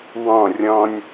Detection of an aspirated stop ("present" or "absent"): absent